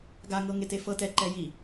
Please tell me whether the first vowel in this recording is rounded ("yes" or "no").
no